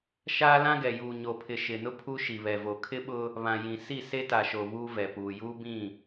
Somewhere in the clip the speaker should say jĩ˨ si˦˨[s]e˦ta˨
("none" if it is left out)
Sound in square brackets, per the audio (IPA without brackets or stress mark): s